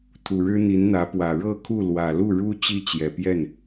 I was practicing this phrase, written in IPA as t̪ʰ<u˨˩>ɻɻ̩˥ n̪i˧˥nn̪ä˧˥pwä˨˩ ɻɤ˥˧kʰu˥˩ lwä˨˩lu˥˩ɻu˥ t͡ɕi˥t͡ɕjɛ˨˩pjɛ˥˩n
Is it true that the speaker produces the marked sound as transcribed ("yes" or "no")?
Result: yes